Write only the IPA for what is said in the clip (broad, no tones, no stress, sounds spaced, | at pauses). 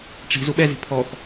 ʈ͡ʂ i̤ z u ɓ ɛ z i̤ pʰ ɔ x